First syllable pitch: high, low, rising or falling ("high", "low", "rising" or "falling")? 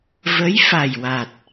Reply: rising